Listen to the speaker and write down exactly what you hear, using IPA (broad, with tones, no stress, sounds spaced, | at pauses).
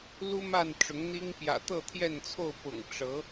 l u˦ m a˥˨ n ʈ͡ʂ ʊ˨˦ ŋ n̪ i˦ ŋ p j ä̰˨˩ t̪ ɤ˥˨ t̪ʰ j ɛ˥˨ n t͡sʰ o˥˨ ʊ̯ p ʊ̰˨˩ ŋ ʈ͡ʂ ɤ˨˦